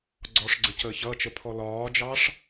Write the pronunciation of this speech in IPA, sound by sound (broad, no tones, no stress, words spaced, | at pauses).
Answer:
ɡ͡ǀɔʂɡ͡ǀə cəːçʌt͡ʃə pʰɔlɒːd͡ʒɑʂ